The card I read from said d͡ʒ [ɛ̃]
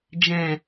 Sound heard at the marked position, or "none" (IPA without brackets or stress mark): ɛ̃